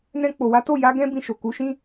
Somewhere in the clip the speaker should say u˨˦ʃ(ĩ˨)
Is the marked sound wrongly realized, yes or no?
yes